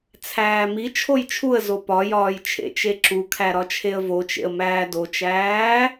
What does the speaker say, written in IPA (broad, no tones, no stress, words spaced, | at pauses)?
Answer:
t͡sʰæːmi t͡ʃʰojt͡ʃʰuə̯zo pɒjɒːj t͡ʃʰḛt͡ʃeǁukʰæ ɾɒt͡ʃʰeə̯vot͡ʃḛə̯ mæːdot͡ʃæː